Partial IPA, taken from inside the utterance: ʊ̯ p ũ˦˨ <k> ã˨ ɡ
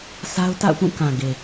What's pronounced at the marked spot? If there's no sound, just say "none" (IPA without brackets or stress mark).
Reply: k